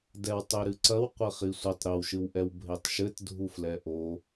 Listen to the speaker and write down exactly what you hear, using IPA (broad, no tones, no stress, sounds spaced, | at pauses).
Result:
d ɛ w tˤ e ɾ ɨ ǀ ɐ w qʷ ɘ χ i sʷ ɘ tˤ ɾ ɘ w ʃ ɨ w ʔ ɛ w bʱ e tˤ ʃ ɘ t dʱ u f l ɛ ʔ o